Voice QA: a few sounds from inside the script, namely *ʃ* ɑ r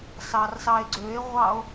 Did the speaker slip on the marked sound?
yes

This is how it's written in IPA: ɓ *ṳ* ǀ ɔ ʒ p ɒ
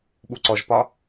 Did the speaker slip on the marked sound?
yes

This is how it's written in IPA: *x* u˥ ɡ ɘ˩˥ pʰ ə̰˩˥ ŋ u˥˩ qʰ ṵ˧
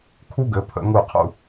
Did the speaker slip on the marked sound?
yes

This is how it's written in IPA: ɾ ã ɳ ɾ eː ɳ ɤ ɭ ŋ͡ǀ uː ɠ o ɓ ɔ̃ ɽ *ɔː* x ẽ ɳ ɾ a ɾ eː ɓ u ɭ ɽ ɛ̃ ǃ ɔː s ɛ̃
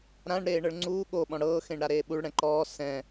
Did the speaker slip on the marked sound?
yes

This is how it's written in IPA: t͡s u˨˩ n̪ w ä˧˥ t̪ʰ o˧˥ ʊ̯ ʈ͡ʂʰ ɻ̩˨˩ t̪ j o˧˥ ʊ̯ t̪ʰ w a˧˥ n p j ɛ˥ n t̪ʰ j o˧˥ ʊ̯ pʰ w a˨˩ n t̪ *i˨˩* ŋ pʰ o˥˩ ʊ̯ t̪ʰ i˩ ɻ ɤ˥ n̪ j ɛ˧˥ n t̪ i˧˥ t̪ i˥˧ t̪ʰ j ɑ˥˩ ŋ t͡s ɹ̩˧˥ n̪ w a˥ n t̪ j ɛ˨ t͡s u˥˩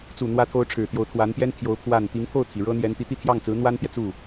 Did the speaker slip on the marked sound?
yes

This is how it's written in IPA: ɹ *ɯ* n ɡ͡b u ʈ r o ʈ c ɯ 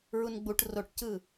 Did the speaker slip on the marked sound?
yes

